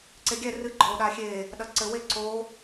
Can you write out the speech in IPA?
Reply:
ǀeɡʲɛ rɨ ɡ͡ǃɔo̯ɗaxʲe | ɗɐǀɘ we ǀo

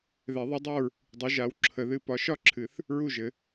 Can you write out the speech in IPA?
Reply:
ðɛ˨˩˦ðˤɨ˨˥dˤa˥˨ɹ | dˤu˨˥ʒa˨˥w ǁʰə˨˩˦ðɨ˥˨ pɒ˨˥ʃɒ˥˨ǁʰɨ˨˩˦θ | ɹu˥˨ʒɘ˨˩˦

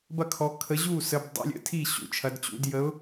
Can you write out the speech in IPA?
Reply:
bɐ˥˩kʰɔ˨˦ kʰə˨˦ʑu˥˩ sə˨˦bdˤṵ˨˦lʲə̰˨˦tʰi˥˩ ɕṵ˨˦t͡ʃʰɐ˨˦dt͡ɕṵ˨˦d jə˨˦ʊ̯

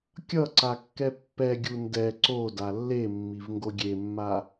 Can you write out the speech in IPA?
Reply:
kʲʌǀakːɛ pːɛɡʲu ndɛ ǀoda lːemːivŋɡo ɡʲemːa

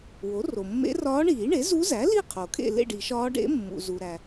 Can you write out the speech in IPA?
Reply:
wo˩˥ro˩mːḛ˧˥rɒː˧˥ ɳiː˨˩˦ɳe˩˥zu˧˥zæ˩˥ li˥˨qʰo˩ kʰḛ˥˨lḛ˥˨ɖi˨˩˦ʃɒː˧˥ ɖḛ˧˥mːṵ˩zu˩ ɾæ˩

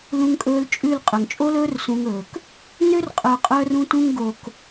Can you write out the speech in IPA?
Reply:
lũ˧ŋkʼɵː˧lt͡ʃʼʉ˦˨l qʼœ˨ŋt͡ʃʼo˦lɵː˦r sũ˧ŋɵː˨k | nø˦rqʼœ˨ qʼœ˧r ũ˧tũ˧ŋɡo˨k

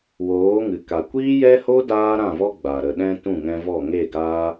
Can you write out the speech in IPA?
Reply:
woː˨˦ŋɨ˨ka˨ kʷiː˦jɛ˦ho˦ daː˦ɾã˦˨vɔ˦ɡ͡ba˨ ɾə˨ɗɛ̃˧ tũ˦˨ŋɛ̃˧vɔ˦˨ ŋe˦˨ɡaː˦

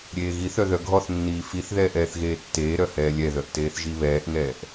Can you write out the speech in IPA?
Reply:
ɾʲeːɣiθœ ðœɡʱɔθnːiː fiθðɛːʔ ɛːθɣeːtːeːɾœ hɛːlʲɛðœʔ teːθʒiβɛːʔŋɛːʔ

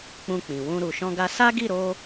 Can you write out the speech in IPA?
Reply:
k͡pũ˧k͡pĩ˨wũ˧ ɾu˨ʃɔ̃˧ɡa˧ sa˦ɡi˦˨ɾo˧

